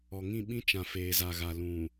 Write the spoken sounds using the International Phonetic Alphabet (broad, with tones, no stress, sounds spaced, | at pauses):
ɔ˨ ŋ ĩ˦˨ ɓ ĩ˦ t͡ʃ ã˨ f eː˨ z a˨ ɣ a˨ l ũ˨